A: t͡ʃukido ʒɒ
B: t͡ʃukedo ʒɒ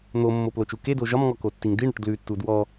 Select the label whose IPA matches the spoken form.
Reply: B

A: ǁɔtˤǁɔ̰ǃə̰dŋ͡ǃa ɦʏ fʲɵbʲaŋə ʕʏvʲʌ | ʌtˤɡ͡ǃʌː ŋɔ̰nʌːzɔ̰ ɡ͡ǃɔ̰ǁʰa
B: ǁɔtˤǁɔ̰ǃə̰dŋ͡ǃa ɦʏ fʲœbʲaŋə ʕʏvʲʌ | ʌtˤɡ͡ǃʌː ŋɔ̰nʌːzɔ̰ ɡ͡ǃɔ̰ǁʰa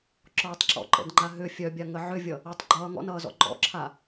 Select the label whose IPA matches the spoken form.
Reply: B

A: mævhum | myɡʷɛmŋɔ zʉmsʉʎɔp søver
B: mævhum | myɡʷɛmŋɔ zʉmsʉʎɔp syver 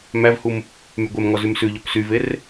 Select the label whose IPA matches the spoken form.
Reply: B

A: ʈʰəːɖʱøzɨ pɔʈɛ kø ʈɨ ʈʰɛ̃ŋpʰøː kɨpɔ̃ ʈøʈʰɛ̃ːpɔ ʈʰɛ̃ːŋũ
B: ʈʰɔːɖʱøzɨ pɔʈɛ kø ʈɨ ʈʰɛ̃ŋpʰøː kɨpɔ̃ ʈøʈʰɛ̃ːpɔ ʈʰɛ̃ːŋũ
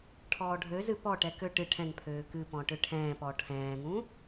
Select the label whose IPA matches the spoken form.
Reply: B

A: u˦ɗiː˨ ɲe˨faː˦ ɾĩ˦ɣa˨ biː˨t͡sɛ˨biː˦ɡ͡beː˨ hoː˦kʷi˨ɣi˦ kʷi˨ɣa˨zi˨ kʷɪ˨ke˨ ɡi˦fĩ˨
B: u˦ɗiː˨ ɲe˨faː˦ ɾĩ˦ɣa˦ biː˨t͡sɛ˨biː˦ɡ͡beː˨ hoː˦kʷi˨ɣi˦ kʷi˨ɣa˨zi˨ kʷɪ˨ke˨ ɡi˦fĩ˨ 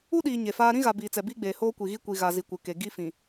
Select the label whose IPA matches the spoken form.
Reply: A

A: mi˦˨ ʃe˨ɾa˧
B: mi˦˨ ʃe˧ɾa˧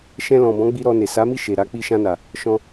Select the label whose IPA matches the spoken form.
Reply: A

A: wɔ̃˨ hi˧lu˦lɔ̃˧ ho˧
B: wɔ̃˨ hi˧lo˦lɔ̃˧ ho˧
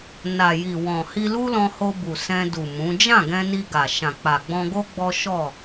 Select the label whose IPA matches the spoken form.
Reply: A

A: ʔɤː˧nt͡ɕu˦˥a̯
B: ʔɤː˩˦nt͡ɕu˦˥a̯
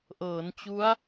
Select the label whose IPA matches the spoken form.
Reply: B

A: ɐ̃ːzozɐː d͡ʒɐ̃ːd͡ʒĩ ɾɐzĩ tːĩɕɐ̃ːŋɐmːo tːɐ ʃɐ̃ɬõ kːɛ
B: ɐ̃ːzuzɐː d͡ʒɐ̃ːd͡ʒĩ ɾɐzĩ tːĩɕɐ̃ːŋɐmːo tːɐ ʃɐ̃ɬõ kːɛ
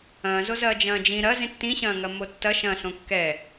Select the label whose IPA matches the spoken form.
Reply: A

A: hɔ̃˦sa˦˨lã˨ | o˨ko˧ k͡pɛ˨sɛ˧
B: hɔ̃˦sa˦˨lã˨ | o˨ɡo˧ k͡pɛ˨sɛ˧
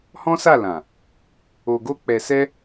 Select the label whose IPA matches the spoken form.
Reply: B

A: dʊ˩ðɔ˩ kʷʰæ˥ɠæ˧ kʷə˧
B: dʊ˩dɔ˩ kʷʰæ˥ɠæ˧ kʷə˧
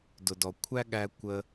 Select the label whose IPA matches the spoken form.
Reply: B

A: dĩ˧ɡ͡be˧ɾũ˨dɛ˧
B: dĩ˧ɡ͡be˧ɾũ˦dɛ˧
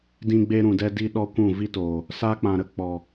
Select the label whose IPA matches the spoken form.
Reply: A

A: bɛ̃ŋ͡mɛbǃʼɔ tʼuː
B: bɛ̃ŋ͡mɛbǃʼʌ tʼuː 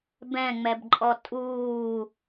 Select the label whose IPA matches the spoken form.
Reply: A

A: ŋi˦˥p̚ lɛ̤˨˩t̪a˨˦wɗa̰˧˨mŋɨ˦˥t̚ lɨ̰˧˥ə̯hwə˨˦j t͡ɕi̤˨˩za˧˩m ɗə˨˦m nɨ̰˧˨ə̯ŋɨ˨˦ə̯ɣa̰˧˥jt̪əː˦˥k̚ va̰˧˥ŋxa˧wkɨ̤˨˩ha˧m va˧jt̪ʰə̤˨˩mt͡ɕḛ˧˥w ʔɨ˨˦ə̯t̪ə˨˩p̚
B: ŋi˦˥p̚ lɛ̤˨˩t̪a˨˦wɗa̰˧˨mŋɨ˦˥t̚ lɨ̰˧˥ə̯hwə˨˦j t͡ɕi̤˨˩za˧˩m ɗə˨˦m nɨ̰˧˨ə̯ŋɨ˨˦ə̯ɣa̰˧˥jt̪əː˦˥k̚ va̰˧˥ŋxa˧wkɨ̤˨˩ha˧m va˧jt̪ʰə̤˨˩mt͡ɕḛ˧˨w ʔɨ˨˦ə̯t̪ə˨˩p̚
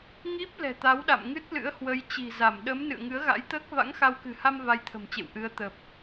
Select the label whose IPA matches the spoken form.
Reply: B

